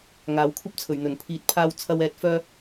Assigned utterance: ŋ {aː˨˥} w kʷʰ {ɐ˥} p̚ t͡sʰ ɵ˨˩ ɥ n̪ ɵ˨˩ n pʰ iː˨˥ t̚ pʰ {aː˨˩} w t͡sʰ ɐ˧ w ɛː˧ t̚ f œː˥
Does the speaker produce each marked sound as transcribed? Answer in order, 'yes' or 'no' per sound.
yes, yes, no

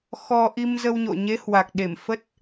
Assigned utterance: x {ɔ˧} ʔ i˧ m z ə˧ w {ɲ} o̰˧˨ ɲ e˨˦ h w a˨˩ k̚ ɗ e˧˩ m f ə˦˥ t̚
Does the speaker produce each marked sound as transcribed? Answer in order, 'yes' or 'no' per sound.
yes, yes

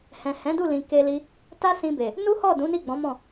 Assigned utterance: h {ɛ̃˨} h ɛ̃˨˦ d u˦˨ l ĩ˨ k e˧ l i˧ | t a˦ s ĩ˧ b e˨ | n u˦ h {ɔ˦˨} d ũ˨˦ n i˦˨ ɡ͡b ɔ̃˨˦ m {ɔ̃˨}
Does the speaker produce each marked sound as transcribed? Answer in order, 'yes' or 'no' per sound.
yes, yes, no

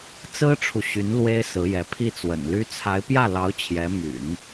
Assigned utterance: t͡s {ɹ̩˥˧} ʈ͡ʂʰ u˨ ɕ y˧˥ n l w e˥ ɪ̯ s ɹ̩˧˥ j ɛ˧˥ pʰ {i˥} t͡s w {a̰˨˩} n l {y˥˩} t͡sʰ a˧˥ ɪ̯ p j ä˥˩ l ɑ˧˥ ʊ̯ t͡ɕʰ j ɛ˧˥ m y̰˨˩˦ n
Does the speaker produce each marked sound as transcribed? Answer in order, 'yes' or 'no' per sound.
no, no, no, no

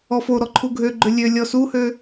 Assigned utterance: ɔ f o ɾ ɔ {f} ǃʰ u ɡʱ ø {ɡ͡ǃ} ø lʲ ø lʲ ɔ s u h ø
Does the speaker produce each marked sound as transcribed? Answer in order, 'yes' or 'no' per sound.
no, yes

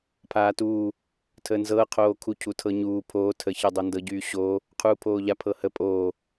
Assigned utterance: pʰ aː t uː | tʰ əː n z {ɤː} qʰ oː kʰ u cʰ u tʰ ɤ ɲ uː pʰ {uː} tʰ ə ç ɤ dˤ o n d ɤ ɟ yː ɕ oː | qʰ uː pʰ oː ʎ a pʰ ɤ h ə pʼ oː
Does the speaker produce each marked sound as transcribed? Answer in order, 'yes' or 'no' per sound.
yes, no

